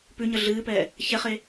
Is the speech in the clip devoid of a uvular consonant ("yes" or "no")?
no